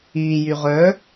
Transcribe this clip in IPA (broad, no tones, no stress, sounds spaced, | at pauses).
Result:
iː j y ʁ œ